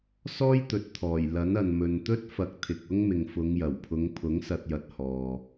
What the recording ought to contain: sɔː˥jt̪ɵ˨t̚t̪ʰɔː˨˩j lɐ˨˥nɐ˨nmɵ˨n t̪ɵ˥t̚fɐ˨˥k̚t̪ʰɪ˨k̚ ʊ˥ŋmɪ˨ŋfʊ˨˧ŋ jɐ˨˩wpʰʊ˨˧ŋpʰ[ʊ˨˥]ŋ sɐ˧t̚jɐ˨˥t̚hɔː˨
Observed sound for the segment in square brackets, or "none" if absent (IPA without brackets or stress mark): ʊ˨˥